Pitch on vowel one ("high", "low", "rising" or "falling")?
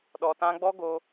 low